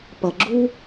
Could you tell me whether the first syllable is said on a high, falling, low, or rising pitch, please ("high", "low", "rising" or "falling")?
low